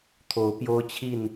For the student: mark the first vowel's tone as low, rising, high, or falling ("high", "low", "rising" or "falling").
rising